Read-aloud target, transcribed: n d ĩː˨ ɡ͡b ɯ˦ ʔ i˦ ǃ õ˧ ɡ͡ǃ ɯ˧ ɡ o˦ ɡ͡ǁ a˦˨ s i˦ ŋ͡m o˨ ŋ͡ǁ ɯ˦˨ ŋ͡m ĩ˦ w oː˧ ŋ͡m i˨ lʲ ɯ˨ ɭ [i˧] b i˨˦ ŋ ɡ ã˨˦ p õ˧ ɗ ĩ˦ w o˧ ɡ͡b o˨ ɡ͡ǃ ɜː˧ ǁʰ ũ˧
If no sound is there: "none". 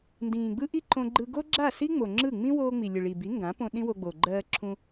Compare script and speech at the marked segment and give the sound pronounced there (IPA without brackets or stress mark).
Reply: i˨